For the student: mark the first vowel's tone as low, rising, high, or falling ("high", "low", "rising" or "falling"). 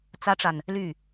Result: high